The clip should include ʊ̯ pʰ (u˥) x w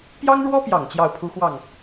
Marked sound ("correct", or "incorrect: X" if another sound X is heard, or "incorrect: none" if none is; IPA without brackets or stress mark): correct